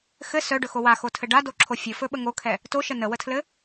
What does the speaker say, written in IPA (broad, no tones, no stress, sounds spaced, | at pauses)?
x ɘ s œ ɖ ɵ x o w a x o tʰ ɘ ɖ a d o ǁʰ o fʲ ɵ f ɵ ɓ ə ŋ o kʰ ɛ | t o ʃ ə n ə w ə tʰ l ɘ